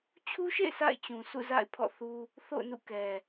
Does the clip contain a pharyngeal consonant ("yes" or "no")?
no